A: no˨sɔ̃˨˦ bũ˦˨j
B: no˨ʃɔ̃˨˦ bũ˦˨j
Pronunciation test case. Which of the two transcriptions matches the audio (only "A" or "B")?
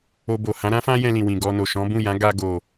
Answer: B